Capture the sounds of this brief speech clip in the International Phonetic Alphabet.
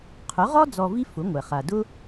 qʰʊ˩˥ʁɔ˥ d͡zɔ˧vi˥ fʊ˩˥ŋʷɛ˩ χa˩dʊ˥

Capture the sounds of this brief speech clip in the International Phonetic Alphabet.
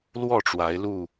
lwɔ˥˨ ʈ͡ʂwa˨˦ɪ̯lu˥˨

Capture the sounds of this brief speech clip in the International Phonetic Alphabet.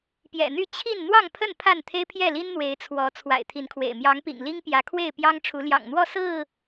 pjɛ̰˨˩n̪y˥˨ t͡ɕʰi˥˨n n̪wɑ˥˨ŋpʰə˥˨n pʰa˥˨nt̪ʰe˦ɪ̯pʰjɛ˥˨ li˦nn̪we˨˦ɪ̯t͡sʰwɔ˨˦ t͡sʰwa̰˨˩ɪ̯t̪ʰi˨˦nkʰwḛ˨˩ɪ̯ mjɑ˨˦ŋpḭ˨˩ŋ li˦ŋpjä˨˦kʰwe˥˨ɪ̯pjɑ˦ŋ ʈ͡ʂʰu˨˦ljɑ̰˨˩ŋn̪wɔ˥˨ sɹ̩˥˨

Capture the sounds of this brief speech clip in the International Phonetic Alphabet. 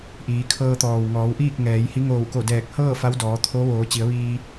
ʔiː˩˧kʰɤː˧t̪ɔː˩w ŋɔː˩˧wʔiː˥˨k̚ ŋɛː˩˧jhi˧˥ ŋoː˧˩wko˧˩dɛː˧˩k̚hɤː˥˨ fa˧˥wdɔː˩˧t̪ʰo˧˥ ʋoː˩˧t͡ɕi˩˧ə̯ʋiː˧

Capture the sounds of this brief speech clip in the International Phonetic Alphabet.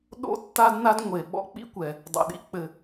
ɗo̰˥tːa˥dna˥d ŋʷe˩ ɓɔ̰˥k͡pḭ˥kʷɛ˩ | dˤo̰˩ɗḭ˥k͡pɘ˩

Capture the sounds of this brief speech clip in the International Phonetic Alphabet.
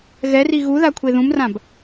ɣɛri ɣuða kʷʰeðũmrãb

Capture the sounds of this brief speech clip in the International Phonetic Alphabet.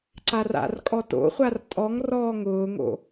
ǀara̰rkʼɔ to̰χʷar tʼɔŋ rɔːŋʊːŋo̰

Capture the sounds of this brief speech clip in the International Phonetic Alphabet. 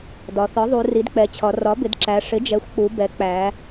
dɒ˩˧ θɒ˩˥ðˤu˩˧ ri˩˥dk͡pɛ˩˥t͡ɕʰɒ˩˧ rɒ˩˥bɪ˩˧dǁæ˩˧ ʂɪ˩˥d͡ʒɛ˩˥xʷk͡pu˩˧bɛ˩˥ k͡pæ˩˧

